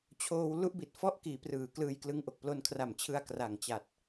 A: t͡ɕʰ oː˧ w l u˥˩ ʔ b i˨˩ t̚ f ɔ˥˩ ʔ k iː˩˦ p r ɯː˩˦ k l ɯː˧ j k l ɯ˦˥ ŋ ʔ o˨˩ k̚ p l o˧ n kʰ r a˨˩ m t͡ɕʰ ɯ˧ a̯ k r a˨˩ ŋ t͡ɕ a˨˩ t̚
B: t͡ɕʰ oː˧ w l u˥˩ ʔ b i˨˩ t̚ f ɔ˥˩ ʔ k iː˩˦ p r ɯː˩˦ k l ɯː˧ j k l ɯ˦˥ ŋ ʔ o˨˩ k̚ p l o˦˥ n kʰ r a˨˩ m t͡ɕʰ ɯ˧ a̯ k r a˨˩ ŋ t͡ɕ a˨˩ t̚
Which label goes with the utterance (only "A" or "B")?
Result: A